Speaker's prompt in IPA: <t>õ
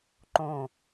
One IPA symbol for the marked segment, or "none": ǃ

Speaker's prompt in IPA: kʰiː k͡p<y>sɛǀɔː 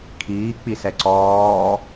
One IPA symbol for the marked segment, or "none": i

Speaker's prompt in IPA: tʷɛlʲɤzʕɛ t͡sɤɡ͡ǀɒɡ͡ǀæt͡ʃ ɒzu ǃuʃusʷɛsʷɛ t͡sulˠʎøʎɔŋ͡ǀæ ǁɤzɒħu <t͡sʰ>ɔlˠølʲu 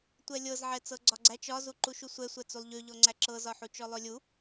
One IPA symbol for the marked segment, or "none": t͡ʃ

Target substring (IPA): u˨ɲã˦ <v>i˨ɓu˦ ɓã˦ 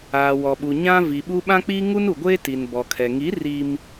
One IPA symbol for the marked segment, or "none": v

